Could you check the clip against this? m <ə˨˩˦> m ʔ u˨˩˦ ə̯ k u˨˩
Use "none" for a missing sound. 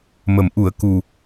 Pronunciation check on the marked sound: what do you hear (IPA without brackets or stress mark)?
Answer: ə˨˩˦